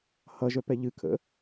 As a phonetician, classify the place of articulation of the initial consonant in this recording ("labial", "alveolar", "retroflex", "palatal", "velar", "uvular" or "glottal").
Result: glottal